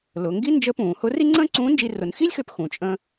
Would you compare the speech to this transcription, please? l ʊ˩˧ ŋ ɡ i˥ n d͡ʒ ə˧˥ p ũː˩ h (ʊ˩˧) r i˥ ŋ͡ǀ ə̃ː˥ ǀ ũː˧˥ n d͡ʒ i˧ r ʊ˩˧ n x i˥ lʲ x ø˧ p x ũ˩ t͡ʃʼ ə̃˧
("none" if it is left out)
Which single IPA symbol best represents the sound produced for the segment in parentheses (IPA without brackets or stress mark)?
ʊ˧˥